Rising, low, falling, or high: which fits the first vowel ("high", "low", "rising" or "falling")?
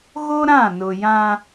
high